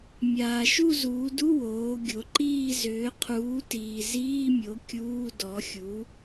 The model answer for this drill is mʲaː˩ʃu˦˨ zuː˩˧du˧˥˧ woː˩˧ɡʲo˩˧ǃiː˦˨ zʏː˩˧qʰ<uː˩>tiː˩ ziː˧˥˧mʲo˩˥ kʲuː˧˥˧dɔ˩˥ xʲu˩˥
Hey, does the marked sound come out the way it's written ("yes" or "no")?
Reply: no